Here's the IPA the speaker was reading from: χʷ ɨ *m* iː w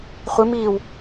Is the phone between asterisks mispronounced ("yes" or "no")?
no